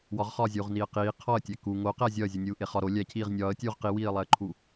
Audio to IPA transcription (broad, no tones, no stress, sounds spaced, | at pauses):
w ɒ ʁ χ ɒː zʲ uː ʁ n iː ə̯ q iː qʰ ɒ ə̯ tʲ æ k u ŋ o q æ zʲ ɒ ə̯ zʲ u nʲ uː ʔ e χ ɒ ɾ o lʲ æ cʰ iː ʁ nʲ ɒː ə̯ tʲ uː ʁ q i w iː ə̯ lˠ æ ə̯ ǃʰ u